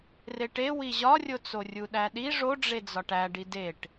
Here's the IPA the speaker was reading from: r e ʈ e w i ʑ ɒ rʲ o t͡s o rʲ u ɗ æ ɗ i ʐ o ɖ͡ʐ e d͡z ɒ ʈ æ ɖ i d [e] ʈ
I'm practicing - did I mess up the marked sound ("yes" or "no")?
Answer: no